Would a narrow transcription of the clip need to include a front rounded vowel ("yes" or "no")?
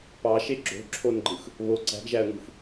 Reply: no